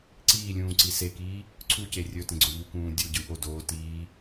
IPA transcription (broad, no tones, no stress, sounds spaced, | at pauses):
ǀ iː lʲ ũː ǀ i s e k iː | ǀʰ u c e rʲ ɵ t ẽ ɡ͡ǀ o ʎ u k ũː dʲ u ɟ ɯ ʔ o d oː t iː